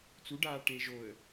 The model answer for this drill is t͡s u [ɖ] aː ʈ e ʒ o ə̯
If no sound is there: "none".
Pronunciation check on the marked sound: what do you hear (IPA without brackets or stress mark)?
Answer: ɖ